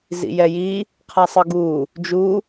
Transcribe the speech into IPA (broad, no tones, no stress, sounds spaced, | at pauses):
z ḭ j ɛ j iː | qʰ a sˤ ɯ ɡ uː | d͡ʒ uː